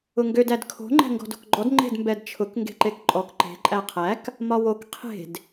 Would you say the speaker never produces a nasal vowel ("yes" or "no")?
yes